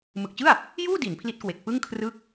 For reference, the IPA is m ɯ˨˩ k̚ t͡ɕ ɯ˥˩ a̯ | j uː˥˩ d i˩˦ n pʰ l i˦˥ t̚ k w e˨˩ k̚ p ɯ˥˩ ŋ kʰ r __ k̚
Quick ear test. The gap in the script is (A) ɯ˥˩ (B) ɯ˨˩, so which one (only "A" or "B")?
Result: A